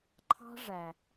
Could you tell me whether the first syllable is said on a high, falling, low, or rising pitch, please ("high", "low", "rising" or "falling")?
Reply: high